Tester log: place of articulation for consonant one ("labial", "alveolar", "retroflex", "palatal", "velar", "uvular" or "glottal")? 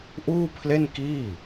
glottal